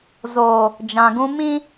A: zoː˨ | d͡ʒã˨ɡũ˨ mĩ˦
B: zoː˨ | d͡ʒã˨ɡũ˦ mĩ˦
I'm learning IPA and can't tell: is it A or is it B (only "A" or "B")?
B